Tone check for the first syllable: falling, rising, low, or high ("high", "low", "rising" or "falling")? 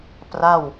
falling